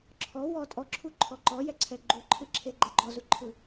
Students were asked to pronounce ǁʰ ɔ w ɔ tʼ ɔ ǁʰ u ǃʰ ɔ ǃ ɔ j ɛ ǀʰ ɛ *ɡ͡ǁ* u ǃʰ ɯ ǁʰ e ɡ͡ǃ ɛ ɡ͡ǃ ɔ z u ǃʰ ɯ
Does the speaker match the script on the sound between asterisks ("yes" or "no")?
no